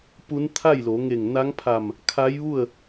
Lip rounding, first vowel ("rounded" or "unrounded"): rounded